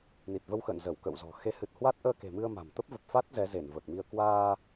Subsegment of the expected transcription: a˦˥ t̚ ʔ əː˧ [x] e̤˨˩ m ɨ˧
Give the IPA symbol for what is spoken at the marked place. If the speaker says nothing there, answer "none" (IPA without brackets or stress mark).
k